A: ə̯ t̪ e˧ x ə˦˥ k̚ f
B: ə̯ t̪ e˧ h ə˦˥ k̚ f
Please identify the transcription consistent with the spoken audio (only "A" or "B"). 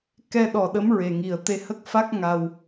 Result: B